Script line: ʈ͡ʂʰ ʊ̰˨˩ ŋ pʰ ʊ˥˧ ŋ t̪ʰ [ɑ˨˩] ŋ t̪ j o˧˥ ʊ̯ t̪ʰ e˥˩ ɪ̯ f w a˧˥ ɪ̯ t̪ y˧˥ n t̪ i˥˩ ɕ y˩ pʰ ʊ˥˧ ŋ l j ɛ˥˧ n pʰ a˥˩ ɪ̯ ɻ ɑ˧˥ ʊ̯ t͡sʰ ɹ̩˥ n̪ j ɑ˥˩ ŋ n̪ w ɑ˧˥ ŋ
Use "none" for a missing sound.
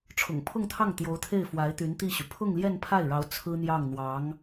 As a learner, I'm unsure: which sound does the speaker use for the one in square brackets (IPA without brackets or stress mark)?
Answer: ɑ˥˩